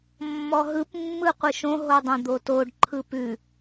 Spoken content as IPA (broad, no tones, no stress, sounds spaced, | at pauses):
mː ɔ ɦ ɯ p mː ɯ qʷ ɯ ʃ õ ɦ o dˤ œ̃ d̪ o t o ɖ ǃʰ ɯ p ʉ